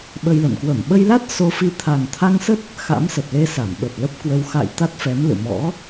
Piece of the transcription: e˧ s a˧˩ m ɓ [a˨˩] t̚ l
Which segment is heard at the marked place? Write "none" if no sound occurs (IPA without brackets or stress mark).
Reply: ə˨˩